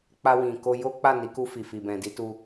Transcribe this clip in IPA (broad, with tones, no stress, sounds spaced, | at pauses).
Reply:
k͡p a˧ w ĩ˨ k o˧ j o˦ k͡p a˦˨ n i˨˦ k u˧ f i˨ f i˨ b ɛ̃˨ d i˨˦ t u˧